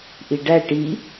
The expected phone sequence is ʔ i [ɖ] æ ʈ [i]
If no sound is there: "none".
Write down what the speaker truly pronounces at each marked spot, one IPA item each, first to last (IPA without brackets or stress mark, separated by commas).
ɖ, i